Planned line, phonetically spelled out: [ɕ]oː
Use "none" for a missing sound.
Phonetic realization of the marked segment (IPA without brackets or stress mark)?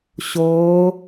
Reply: ɕ